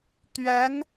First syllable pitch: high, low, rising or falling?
rising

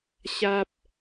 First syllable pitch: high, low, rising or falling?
high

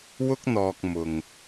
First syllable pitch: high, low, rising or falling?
high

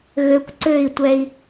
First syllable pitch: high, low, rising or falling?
low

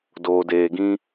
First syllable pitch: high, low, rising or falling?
low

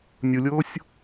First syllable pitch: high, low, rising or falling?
low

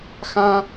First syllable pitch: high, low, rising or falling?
high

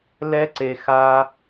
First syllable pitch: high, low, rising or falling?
high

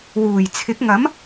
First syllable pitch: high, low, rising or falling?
low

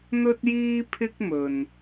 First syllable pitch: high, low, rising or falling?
high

